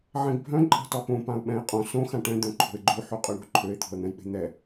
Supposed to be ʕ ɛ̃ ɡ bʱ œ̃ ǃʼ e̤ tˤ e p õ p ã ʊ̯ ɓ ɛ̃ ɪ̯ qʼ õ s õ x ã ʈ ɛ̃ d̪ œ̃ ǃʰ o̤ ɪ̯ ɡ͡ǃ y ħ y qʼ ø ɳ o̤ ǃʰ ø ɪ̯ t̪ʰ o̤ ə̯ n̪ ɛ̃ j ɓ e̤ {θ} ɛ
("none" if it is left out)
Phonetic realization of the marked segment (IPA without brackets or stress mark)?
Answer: n̪